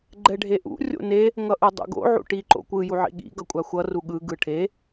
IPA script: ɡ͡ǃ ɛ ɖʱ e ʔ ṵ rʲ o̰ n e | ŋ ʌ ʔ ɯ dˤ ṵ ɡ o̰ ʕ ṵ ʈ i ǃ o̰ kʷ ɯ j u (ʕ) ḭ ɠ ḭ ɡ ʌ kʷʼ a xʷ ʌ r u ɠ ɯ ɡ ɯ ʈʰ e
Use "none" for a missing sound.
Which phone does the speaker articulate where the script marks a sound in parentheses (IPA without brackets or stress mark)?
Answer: ʕ